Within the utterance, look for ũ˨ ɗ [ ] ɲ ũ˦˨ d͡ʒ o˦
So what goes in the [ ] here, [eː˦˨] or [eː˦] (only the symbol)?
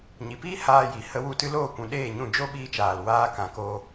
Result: eː˦˨